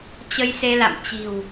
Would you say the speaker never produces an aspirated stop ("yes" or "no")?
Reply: yes